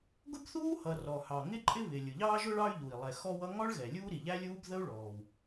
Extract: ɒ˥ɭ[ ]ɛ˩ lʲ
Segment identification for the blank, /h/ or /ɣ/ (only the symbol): ɣ